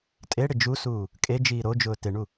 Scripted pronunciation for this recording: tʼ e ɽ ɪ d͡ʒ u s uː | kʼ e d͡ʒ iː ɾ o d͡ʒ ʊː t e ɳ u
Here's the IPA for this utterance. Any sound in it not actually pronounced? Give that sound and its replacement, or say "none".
none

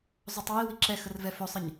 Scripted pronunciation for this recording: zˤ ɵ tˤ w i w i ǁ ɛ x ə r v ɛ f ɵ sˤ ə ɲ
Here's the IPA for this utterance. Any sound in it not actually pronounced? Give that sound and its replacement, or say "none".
none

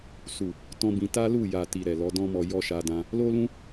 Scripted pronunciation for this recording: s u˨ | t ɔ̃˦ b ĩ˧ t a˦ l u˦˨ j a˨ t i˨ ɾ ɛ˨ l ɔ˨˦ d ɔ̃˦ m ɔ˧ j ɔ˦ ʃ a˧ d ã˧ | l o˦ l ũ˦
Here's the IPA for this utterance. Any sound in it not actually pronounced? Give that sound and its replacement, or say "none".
none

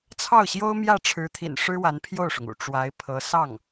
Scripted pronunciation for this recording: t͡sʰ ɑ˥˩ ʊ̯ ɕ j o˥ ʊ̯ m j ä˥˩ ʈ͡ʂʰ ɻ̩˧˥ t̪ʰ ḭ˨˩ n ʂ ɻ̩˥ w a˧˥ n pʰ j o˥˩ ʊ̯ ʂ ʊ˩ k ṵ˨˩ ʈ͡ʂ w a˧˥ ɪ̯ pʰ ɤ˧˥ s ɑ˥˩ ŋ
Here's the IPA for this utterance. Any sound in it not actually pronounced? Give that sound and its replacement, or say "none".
k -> ŋ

